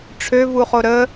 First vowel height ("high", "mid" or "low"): mid